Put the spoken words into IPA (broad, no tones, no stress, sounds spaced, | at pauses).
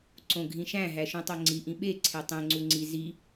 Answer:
ǀ õ ɡʱ ĩ ʃ æ̃ ɦ æ ʃ ũ tˤ o ŋ͡ǀ i ʔ ĩ ɓ e ǀʰ e tˤ ẽ ŋ͡ǀ u ŋ͡ǀ i z i